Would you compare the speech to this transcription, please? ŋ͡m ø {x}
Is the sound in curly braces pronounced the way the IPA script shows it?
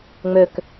no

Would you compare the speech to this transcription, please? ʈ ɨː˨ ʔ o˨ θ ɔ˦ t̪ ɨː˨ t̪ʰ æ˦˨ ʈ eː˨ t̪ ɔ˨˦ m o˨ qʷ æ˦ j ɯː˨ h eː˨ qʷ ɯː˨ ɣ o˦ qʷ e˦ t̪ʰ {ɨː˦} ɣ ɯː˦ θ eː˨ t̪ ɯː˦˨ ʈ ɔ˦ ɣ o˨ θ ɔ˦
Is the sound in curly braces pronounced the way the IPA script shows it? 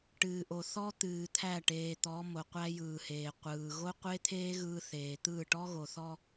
no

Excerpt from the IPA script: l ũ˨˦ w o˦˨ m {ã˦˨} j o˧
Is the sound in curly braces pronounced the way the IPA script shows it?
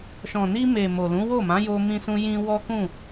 no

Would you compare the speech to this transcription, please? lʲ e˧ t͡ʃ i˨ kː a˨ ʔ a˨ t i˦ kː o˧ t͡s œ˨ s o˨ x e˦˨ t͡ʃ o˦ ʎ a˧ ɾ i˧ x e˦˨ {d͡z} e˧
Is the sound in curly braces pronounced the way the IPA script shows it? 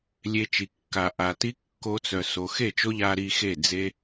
yes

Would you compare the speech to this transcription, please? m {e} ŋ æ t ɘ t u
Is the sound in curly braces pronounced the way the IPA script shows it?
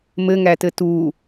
no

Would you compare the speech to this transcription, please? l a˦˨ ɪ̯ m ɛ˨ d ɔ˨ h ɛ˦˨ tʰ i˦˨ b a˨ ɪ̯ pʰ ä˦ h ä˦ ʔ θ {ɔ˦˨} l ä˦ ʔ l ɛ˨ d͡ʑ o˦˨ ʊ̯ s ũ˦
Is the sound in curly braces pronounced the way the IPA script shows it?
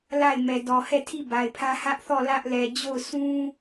yes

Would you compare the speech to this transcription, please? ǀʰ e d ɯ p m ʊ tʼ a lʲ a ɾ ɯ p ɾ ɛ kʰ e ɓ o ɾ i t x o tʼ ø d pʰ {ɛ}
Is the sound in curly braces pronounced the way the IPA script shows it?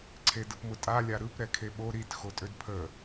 no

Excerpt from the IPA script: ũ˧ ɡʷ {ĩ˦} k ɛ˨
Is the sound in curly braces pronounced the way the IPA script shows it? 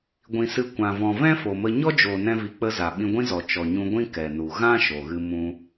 yes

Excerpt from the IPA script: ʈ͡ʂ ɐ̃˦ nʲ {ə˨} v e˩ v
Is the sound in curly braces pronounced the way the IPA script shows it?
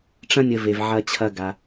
yes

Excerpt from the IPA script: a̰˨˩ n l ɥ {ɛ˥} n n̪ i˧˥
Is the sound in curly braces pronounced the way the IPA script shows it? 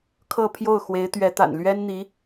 yes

